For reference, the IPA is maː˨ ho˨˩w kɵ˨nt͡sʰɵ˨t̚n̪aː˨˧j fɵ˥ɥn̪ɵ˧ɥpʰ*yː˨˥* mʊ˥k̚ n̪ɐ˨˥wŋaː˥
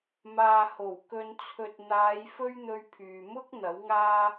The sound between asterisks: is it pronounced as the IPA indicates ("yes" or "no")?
no